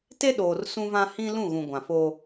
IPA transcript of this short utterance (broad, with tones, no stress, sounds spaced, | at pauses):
t e˦ ɗ oː˨ r s ũ˦ v ã˦ h ĩ˦ l ũ˦˨ ɣ ũ˨ ɡʷ ã˨ f oː˦